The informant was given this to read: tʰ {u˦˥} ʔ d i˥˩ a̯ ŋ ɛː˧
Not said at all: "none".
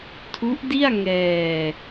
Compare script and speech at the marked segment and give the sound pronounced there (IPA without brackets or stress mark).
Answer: u˦˥